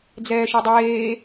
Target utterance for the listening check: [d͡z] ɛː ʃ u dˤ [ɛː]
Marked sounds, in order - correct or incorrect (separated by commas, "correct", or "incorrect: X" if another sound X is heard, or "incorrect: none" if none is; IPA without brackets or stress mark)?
correct, incorrect: eː